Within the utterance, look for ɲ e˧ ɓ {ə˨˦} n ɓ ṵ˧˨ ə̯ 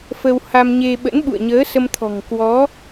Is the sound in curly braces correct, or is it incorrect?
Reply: incorrect: ə̰˧˥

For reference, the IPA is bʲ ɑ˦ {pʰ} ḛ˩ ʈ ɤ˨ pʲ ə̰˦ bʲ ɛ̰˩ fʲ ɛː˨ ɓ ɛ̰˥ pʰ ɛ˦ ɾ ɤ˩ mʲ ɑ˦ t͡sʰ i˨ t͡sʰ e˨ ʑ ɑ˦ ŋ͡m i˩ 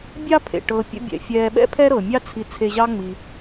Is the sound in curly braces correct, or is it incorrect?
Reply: correct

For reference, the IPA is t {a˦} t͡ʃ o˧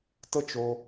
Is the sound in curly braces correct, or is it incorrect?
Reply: incorrect: ə˦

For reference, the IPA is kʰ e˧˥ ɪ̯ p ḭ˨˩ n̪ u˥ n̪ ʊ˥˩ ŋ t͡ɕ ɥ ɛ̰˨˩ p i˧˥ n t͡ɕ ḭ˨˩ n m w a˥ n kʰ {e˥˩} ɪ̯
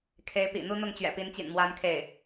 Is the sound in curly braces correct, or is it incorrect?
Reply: correct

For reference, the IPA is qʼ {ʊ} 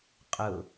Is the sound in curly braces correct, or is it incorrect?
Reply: correct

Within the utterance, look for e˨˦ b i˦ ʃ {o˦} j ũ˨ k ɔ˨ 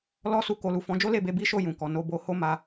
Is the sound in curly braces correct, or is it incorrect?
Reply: incorrect: o˦˨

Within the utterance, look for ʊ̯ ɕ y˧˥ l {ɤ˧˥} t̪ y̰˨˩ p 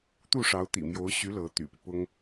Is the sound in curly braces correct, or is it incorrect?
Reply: correct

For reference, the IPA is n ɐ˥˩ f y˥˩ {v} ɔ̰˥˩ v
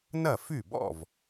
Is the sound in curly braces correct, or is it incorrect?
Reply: incorrect: b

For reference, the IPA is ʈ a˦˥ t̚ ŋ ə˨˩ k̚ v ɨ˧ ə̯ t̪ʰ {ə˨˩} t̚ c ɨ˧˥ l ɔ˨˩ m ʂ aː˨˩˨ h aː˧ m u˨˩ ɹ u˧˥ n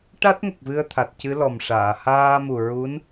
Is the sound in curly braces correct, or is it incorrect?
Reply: incorrect: a˨˩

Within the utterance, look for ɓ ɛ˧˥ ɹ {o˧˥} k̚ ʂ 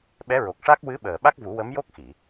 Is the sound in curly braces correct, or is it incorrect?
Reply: incorrect: o˨˩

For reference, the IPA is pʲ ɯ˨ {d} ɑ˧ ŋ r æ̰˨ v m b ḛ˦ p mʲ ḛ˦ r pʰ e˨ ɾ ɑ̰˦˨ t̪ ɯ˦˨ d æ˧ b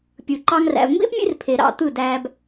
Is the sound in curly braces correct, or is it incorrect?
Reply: incorrect: ǃ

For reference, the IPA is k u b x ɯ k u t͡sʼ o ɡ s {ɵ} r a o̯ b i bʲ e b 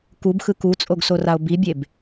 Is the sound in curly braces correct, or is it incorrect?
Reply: incorrect: o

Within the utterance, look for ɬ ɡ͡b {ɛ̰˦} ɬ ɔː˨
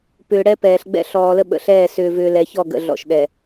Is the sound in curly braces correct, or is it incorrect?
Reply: correct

